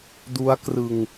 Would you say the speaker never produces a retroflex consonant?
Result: yes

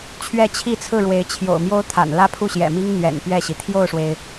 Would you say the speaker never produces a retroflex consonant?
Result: no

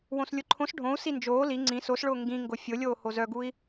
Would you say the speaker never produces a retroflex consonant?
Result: no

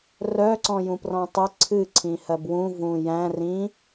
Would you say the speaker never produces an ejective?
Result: yes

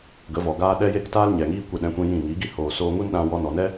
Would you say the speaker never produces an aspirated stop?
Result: yes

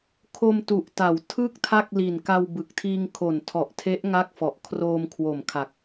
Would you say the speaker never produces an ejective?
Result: yes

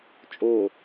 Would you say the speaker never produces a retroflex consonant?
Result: yes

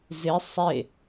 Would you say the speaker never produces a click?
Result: yes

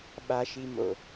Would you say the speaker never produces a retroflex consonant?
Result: yes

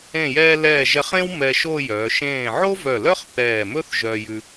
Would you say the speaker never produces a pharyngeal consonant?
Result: no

